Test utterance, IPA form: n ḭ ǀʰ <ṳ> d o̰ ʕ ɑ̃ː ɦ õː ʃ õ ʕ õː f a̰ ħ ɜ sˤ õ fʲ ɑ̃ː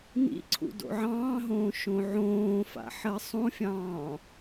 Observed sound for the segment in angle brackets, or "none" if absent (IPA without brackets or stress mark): ṵ